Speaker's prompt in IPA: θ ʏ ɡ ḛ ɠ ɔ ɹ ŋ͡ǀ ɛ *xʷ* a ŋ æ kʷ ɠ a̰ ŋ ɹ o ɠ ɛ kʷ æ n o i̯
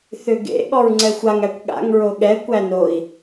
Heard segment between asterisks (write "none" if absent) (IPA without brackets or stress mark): xʷ